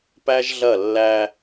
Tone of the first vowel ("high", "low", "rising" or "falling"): high